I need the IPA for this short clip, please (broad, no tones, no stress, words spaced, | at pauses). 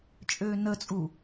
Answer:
t͡ʃʼøːnət͡sʼu